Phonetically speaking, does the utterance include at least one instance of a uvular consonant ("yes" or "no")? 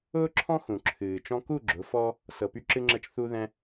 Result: no